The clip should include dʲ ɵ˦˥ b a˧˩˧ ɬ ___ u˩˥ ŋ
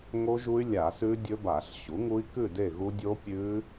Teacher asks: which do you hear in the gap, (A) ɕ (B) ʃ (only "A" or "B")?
A